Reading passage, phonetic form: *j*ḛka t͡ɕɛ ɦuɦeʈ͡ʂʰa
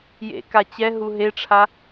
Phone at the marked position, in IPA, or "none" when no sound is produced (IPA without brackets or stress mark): j